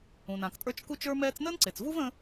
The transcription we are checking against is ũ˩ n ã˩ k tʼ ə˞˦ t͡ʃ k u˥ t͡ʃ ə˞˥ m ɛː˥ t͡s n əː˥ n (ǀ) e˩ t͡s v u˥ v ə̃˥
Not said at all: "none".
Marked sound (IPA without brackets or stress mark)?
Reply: ǀ